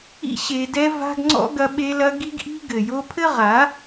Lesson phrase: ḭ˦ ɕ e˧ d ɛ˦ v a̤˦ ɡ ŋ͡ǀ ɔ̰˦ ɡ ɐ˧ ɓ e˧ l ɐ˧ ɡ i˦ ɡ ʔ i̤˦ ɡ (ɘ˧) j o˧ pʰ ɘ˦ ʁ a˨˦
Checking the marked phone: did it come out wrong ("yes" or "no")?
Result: yes